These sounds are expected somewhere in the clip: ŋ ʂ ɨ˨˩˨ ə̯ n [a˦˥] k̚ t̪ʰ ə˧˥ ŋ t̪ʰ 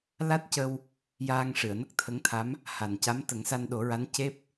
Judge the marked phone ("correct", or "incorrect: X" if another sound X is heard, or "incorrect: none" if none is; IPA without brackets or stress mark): incorrect: ə˦˥